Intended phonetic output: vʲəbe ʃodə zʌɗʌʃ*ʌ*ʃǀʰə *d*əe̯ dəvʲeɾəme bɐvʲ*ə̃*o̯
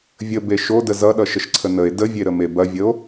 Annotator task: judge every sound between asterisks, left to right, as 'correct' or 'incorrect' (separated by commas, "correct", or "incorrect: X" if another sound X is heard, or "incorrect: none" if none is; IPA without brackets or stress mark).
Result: incorrect: ə, incorrect: n, incorrect: ə